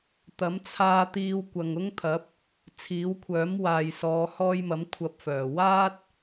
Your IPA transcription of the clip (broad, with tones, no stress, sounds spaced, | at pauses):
t̪ ɐ˨˥ m t͡sʰ aː˧ t̪ iː˧ w kʷ ɐ˨ ŋ ʊ˥ ŋ t̪ʰ ɐ˨˥ p̚ | t͡sʰ iː˨˥ w kʷʰ œː˨˥ m w aː˨ j s ɔː˨˧ h ɔː˧ j m ɐ˨˥ m kʷʰ ɐ˧ p̚ f œː˨˩ w aː˥ t̚